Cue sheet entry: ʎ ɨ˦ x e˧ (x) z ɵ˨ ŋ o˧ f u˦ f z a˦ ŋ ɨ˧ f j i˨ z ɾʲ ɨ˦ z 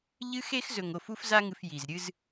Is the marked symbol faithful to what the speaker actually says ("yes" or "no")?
yes